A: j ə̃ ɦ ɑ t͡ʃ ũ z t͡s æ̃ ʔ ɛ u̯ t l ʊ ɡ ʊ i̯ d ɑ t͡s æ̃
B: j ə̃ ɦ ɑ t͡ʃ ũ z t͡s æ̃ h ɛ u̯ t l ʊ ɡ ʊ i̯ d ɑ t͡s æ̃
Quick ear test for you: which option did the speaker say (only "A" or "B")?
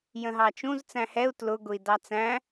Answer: B